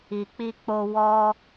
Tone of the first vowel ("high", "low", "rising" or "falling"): low